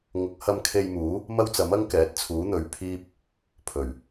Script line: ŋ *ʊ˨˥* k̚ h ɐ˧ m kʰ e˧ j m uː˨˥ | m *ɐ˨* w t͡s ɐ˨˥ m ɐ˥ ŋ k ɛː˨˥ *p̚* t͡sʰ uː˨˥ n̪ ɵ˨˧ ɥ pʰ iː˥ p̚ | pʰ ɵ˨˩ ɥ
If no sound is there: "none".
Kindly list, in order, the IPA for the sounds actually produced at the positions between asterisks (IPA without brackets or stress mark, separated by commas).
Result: ʊ˨˥, ɐ˥, t̚